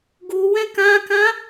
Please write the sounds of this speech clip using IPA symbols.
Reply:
ɡuwɛ̃ kãkã

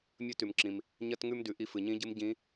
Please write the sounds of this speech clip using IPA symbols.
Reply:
mʲɵ˧˥tʉ˩mǁĩ˩m | ɲɐ˥tŋʉ˥mdʉ˩ ʔi˧fɨ˩ɲĩ˧˥ɟɨ˧˥m ɟĩ˧˥

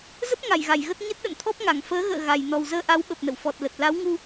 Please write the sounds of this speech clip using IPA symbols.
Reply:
zə˦˥p̚ŋa˧˩j ɣa˧˩jɣə˦˥t̚ ɲə˦˥t̚ɗə̰˧˨nt̪ʰɔ˦˥p̚ŋa˧˩ŋ fəː˨˦ɣə̰ː˧˨ ɣa˨˩j nɔ˨˩wzəː˧ʔa˨˦wɓə˨˩p̚ nə̰˧˨wfɔ˨˩t̚lə˨˩t̚ la˨˦wŋu˧

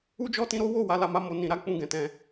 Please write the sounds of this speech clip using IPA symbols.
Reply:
u˦d͡ʒɔ˦ tĩ˧ɾo˦ wo˦˨ wa˨˦la˧ma˦ mo˧ nĩ˨ɾa˨˦ k͡pũ˦˨ɡɛ̃˨tɛ̃˧

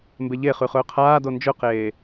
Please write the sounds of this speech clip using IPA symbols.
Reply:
mbeʎeχʉ χɵːqʰaːdo nd͡ʒɵqeː

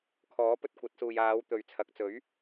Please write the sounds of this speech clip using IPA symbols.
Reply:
kʰɔː˨˥pɵ˧t̚kʷɐ˨˥t̚suː˨j aː˨˧wt̪ɵ˨ɥt͡sʰɐ˨k̚t͡sɵ˨˥ɥ

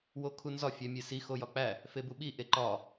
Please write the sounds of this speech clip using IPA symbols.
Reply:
wokʰunzɒ fʲæmʲesi xojɒk͡pæ | febuɓi ʔeǃɒ

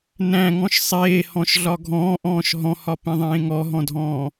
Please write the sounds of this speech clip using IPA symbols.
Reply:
næ̃ŋɔ̃ʃ sˤeːhɔ̃ʃɮɒ ɡʱɔ̃ːʔɔ̃ːʃ ɦɔ̃hɒpẽðˤẽː ŋɔɦɔ̃dʱɔ̃ː

